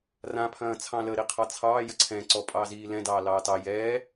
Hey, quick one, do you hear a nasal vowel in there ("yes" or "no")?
yes